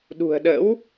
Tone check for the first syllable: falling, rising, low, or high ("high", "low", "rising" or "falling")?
low